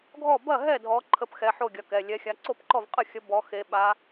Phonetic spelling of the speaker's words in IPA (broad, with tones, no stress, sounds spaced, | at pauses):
ɡʱ ɔ˥˨ b ɐ˥˨ ɦ ɛ˥˨ dʱ ɔ˧˥ ǃʰ ə˧˥ p x ɛ˩˧˩ ħ o˥˨ ɡʲ ɐ˩˧˩ k ɛ˩˧˩ lʲ ɛ˧˥ xʲ a˧˥ ǀ o˥˨ p ǃ ɔ˥˨ v qʼ ə˥˨ xʲ ə˧˥ b ɔ˧˥ x e˧˥ ɓ a˧˥